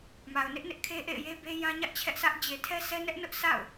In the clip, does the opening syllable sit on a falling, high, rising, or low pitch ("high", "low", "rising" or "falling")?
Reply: low